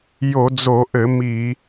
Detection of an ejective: absent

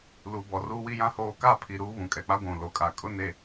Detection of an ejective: present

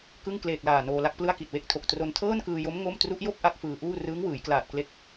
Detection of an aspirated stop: present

